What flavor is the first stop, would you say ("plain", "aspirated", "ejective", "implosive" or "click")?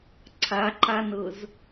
click